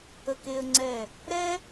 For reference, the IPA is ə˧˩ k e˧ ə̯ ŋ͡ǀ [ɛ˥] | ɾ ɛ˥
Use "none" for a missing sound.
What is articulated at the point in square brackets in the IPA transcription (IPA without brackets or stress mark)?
ɛ˧˩